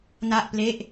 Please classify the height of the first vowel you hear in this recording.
low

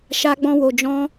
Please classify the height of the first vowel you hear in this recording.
low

